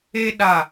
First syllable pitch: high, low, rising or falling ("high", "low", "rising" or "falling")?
high